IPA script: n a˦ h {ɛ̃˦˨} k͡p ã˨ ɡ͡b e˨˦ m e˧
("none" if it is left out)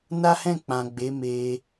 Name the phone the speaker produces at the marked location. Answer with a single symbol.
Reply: ɛ̃˦˨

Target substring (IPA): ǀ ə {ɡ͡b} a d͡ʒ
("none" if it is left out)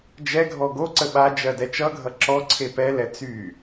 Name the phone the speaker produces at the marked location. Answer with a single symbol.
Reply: ɓ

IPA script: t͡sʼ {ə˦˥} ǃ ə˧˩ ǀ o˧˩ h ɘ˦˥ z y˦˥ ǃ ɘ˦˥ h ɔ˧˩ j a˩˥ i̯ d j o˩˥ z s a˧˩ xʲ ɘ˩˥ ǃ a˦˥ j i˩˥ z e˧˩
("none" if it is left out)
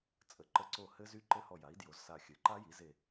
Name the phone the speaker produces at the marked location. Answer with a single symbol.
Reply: ə˩˥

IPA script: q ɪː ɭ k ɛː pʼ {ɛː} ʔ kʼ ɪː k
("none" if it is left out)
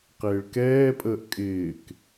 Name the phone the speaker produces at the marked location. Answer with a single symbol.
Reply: əː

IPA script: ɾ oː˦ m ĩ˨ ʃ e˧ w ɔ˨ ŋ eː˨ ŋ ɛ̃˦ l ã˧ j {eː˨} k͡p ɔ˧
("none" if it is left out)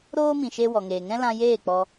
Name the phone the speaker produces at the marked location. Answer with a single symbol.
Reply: eː˦˨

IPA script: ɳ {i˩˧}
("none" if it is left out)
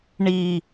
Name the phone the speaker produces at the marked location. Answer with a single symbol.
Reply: i˦˨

